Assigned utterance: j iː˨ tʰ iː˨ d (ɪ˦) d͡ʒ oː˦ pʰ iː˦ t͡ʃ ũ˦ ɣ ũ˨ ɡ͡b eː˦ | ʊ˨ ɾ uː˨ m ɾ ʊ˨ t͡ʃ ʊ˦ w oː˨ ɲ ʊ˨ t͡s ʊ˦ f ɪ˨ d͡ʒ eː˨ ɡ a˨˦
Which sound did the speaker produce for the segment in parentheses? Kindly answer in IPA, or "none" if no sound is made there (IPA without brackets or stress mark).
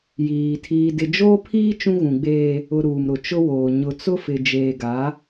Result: ɪ˨